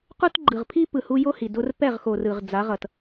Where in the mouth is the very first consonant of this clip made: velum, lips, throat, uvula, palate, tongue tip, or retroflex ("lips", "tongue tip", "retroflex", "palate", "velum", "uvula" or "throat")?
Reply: uvula